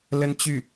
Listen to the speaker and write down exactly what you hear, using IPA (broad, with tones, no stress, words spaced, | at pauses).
lə˥nt͡ɕy˥˩